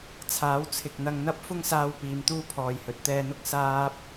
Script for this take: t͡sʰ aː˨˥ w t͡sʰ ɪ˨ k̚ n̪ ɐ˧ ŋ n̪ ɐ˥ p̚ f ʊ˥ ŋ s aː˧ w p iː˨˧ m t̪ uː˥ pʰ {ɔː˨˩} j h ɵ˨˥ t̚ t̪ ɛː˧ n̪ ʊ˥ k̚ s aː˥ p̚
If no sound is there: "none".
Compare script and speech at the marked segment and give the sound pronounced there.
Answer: ɔː˨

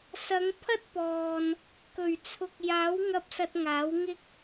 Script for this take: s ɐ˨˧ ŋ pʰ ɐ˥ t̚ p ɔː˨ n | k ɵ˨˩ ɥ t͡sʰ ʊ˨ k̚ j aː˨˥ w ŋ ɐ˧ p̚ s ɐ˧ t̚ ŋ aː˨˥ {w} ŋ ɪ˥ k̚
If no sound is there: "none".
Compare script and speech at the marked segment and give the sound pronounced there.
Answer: w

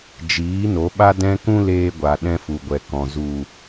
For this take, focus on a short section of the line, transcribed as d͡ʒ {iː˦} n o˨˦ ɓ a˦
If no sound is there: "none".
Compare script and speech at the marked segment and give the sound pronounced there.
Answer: iː˨˦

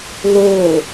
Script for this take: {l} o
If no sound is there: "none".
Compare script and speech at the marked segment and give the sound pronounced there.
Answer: l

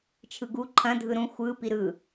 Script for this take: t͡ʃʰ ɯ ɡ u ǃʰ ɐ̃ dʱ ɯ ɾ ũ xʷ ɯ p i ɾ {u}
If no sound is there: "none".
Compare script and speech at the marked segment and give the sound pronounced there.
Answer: ɯ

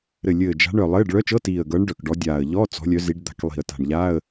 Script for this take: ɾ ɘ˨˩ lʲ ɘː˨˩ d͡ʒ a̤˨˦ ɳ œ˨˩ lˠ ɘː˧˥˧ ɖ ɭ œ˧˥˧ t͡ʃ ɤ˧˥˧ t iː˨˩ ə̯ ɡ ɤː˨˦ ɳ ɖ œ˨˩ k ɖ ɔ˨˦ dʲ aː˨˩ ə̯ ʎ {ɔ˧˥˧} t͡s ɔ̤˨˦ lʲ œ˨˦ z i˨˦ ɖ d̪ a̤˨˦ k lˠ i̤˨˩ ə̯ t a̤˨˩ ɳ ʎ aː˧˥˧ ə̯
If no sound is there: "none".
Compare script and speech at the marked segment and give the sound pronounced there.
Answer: ɔ˧˥˧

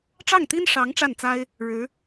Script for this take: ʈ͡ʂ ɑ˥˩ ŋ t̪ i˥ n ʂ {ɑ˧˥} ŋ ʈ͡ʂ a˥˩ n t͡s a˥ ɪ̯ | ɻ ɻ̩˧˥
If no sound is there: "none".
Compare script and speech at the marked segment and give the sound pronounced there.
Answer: ɑ˧˥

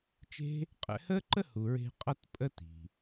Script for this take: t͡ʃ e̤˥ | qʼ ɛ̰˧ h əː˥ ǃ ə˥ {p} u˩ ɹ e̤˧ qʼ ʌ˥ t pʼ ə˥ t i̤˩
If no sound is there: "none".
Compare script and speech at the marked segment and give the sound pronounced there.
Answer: h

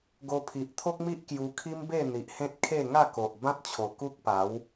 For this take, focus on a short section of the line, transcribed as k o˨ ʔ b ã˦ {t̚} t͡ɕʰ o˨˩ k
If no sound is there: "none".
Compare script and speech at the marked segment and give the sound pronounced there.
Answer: t̚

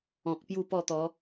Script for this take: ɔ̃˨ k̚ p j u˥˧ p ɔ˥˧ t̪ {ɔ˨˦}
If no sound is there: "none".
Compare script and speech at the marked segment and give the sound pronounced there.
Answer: ɔ˨˦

